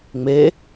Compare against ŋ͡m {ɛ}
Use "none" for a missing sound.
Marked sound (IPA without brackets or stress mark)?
e